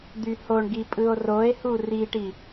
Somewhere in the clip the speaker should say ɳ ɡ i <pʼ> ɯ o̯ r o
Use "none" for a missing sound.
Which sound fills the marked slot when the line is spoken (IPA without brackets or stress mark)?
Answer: pʼ